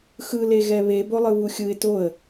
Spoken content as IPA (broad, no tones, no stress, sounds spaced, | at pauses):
x ɯ l e ɣ ɛ β e b o lˠ ɯ β u xʲ ɯ ɪ̯ t o ə̯